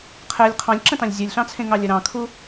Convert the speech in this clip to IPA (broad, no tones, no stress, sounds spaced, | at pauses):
qʰ ɛ lʲ qʰ ɑ̃ lʲ ǁ ə̃ t ɑ̃ lʲ zʲ u lʲ ɬ ɑ̃ t͡sʰ ẽ ŋ ɑ lʲ ə ɾ ɑ̃ kʰ u